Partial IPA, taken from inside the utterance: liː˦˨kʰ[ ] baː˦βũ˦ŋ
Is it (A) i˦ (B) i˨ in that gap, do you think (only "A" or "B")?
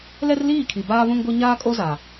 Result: B